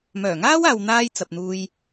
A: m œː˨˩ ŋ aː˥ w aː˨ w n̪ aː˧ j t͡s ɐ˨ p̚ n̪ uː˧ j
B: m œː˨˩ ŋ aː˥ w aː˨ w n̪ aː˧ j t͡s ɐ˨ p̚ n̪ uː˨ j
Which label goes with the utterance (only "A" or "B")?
A